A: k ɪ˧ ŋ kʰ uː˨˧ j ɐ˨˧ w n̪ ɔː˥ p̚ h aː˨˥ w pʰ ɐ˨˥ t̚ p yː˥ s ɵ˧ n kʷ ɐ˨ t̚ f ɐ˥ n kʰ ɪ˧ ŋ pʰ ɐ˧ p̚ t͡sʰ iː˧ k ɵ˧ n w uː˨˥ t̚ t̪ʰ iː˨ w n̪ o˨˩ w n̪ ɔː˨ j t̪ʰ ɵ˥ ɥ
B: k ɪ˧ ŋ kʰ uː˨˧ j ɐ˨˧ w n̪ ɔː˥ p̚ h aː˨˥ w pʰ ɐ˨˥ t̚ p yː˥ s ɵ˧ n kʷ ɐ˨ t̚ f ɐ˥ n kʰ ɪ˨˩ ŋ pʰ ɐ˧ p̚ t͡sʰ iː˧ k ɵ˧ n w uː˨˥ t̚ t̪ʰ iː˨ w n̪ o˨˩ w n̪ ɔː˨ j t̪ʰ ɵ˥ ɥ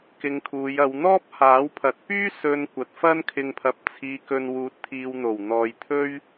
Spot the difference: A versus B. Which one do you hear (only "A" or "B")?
A